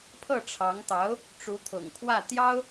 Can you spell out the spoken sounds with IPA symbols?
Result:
pʰ ɤ˥˩ ʈ͡ʂʰ ɑ˧˥ ŋ t̪ ɑ˧˥ ʊ̯ | ʈ͡ʂ u˧˥ t̪ʰ ʊ̰˨˩ ŋ kʰ w ä˥˩ t̪ j ɑ˥ ʊ̯

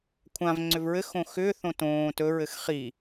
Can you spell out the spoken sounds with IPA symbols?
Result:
kʷʰ ã v ŋ͡ǀ ʏ v ɹ ɘ x õ x ʏː θ õ t õː t ɵ ɹ ɘ x χ i

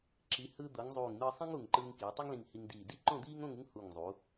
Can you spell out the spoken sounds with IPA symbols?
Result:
ǁ i˩˧ h ɯː˧ d̪ ɤ˩˧ ŋ zˤ uː˧˩ ŋ n̪ ɯː˧ sˤ ĩ˥ ŋ u˧˩ ŋ ǃ ɯː˧ ŋ k iː˩˧ tˤ o˥ ŋ l ĩ˧˩ ŋ h i˧ ŋ d iː˧˩ d i˥ ǃ õ˥˧ d̪ iː˥ ŋ õ˥˧ ŋ ɯ˥ ŋ h u˧˩ ŋ zˤ u˩˧

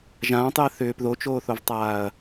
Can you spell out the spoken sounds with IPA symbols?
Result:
ʒ ãː tˤ j ɜ θ ʏː p ð o t͡ʃ oː θ o v tˤ aː ɐ̯

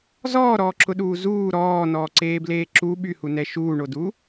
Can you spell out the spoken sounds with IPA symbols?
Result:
z ɔː ɾ ɔː ǁ ʊ ɗ uː z uː ɾ ɔː n ɔː ǀ eː b l eː ǁ u ɓ y h u n ɛ ʃ uː ɳ o d u

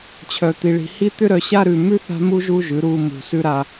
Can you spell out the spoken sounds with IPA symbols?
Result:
t͡ɕʰ œ˨ t̪ i˨ ɭ i̤˨ h i˦ t̪ ʏ˦ ɾ œ˨ ɕ a˦ ɾ ʉ˨ m ʉ˦ θ a̤˦ m u˦ ʒ u˦ ʒ ʉ˨˦ ɾ u˨ m ṳ˨ s ʉ˦ ɾ a˦

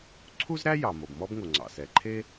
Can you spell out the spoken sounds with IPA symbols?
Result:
ǀʰ u˥ z ɾ æ˥ j ɑ˩ m o˩ b m ɔ˥ b ŋ o˩ ŋ͡ǀ ɑ̰˩ s ɛ˩ ǃʰ e˥

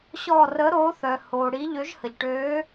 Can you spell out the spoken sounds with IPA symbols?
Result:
ɕ ɔ˧˩ r ə˨˥ ɾ oː˨˥ θ œ˩ h oː˩ ɽ i˨˥ ʎ ø˨˥ ʒ h ə˩ ʎ ʈ øː˨˥

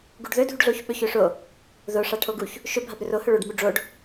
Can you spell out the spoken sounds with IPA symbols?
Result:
ɡ u ɖ ð ɵ dʱ u ɖ ɮ o ç ɓ ɵ ç ɵ ʂ o | ð o ʂ a ʈʰ o ɡ u ç | ʃ ɵ bʱ a b ɾ ɵ r o h ɵ ɭ o ɖ m u ɖ͡ʐ o ɖ

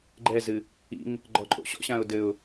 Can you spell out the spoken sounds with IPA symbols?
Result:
ɡ͡ǃ ɛ z ɨ | ḭ ŋ | ɡ͡ǃ ɔ ǃʼ o̰ ɕ ɔ̰ ɕ ã ʊ̯ d ɘ ʊ̯

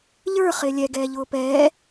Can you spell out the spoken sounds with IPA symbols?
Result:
ʎ ə˞ χ ɪː lʲ ɛ ɡ ɛː ʎ ʊː p ɛː

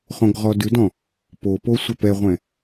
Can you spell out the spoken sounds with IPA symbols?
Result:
χ õ ɡ ʁ ɔ d ʉ d ɔ̃ | p o p o sʷ ɛ p ɛ ʁʷ ɛ̃

